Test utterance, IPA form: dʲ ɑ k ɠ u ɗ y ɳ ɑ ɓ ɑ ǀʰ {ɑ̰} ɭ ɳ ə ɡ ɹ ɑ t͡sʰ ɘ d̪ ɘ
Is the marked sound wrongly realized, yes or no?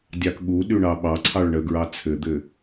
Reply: yes